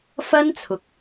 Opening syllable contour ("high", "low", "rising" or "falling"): high